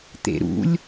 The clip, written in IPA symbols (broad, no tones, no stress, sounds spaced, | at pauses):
t̪ ḛ ɾ ṵ lʲ